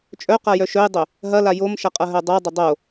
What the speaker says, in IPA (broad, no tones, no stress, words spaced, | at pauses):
t͡ʃʼœ qajœʃœjdˤø | ɦɐla jomʃɐ qʼɐɦœdˤodˤɐ dˤo